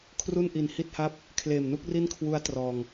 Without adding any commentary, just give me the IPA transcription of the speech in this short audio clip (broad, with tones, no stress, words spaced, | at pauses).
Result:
kʰru˥˩nʔi˨˩nhi˥˩t̚ha˥˩p̚ | kʰleː˨˩mnu˦˥k̚ ri˥˩nkʰwu˦˥a̯trɔː˨˩ŋ